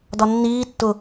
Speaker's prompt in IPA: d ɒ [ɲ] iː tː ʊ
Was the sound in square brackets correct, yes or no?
no